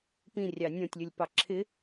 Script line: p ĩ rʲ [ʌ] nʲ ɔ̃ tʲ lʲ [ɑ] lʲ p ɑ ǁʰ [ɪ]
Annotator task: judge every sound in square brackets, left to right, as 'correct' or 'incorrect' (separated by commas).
incorrect, incorrect, correct